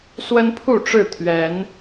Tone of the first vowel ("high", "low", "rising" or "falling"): high